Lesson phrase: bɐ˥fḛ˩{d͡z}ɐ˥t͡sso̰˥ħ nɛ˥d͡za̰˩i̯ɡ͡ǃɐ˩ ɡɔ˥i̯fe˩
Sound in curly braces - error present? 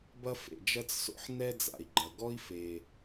yes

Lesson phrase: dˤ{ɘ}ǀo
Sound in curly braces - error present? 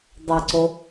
no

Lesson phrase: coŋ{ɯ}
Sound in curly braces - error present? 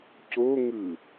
no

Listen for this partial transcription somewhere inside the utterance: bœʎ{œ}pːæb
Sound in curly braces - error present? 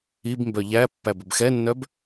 yes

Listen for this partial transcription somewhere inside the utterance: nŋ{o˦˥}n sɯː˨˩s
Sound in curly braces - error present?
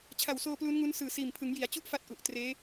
yes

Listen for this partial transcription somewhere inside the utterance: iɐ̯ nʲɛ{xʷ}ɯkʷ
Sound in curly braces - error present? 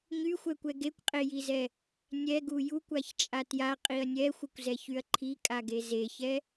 no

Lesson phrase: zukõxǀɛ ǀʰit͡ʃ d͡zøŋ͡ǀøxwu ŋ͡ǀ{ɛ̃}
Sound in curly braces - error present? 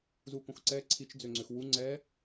yes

